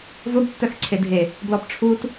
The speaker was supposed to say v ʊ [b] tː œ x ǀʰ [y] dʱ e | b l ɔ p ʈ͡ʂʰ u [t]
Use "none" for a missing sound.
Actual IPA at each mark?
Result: b, e, t

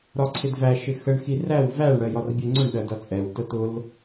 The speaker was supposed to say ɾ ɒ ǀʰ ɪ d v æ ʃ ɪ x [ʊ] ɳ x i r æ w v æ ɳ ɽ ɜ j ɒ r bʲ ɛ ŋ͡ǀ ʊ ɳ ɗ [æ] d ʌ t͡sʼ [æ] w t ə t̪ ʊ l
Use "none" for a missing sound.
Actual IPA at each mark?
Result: ə, ɜ, ɛ

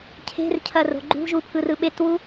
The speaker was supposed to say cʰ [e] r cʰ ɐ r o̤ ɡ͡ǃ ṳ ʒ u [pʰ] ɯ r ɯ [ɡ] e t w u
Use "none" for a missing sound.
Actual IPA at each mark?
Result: e̤, pʰ, ɓ

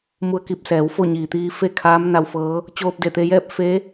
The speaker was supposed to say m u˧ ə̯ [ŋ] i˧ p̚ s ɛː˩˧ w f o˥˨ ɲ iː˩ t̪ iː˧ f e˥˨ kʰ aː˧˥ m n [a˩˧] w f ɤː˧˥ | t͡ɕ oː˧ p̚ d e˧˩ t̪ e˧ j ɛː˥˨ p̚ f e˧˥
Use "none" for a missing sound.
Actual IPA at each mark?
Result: k, a˧

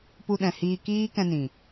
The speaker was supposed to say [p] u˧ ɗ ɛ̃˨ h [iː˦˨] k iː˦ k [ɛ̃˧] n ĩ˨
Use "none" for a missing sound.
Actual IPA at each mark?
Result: p, iː˧, ɛ̃˧

